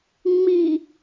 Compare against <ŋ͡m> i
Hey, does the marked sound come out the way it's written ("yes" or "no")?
yes